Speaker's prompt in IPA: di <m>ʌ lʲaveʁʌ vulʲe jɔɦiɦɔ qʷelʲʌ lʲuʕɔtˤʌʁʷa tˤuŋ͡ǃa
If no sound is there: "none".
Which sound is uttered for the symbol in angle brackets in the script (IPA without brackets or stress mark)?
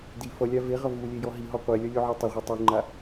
f